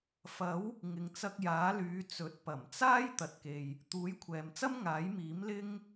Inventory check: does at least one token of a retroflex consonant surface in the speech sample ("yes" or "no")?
no